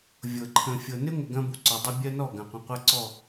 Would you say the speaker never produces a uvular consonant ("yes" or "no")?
no